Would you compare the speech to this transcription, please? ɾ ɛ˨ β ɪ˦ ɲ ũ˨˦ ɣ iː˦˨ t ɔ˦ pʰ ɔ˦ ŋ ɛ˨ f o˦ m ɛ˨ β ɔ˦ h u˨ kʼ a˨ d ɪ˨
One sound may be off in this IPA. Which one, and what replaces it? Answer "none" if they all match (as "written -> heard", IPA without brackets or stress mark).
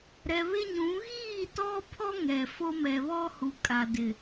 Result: none